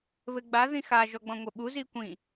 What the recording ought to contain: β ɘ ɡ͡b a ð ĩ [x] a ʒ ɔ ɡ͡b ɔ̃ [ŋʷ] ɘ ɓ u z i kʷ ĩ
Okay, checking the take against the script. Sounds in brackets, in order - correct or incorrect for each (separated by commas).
correct, correct